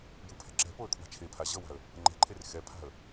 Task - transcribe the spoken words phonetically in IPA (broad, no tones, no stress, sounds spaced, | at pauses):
j ɯ pʰ ɛ̤ ǁ ɛ̤ p o ə̯ kʰ w a̤ t͡ʃʰ e pʰ a ʑ ʌ w a̤ ə̯ | ŋ͡ǃ ɛ̤ ǃʰ e r x ɛ pʰ a̤ ə̯